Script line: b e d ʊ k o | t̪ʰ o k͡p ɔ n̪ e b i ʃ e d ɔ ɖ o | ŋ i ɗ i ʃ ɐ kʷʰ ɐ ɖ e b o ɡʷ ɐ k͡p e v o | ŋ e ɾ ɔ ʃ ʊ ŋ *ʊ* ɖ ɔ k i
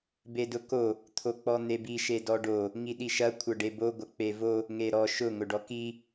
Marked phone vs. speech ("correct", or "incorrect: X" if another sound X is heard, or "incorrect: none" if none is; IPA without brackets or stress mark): correct